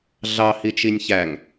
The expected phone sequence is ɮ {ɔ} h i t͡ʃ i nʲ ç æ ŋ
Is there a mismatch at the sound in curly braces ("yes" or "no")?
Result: yes